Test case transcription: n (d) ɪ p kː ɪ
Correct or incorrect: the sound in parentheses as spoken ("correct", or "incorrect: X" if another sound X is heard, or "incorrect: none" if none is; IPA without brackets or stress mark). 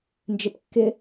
incorrect: d͡ʒ